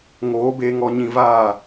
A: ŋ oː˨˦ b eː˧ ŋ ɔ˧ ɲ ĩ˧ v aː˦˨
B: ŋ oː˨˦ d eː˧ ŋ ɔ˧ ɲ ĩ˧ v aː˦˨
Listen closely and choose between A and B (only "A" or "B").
A